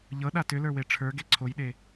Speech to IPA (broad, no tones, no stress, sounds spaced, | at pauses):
ʎ ɤ ɗ a t ʏ l ə˞ w e ʈ͡ʂʰ ə˞ ɡ e ǀʰ o j ɗ e